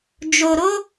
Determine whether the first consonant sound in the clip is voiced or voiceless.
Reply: voiced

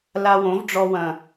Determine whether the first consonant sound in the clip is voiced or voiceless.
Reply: voiced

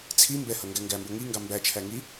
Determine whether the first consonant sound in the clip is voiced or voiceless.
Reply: voiceless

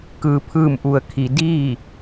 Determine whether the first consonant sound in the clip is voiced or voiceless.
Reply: voiceless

